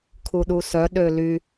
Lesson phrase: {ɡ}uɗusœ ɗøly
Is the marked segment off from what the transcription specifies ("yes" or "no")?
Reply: yes